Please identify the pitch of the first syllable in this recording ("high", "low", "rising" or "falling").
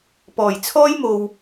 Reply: low